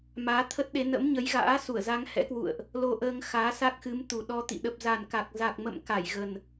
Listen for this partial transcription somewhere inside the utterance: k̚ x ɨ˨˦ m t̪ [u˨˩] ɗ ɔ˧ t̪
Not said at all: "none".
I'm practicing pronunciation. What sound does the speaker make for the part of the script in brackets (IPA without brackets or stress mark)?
u˨˩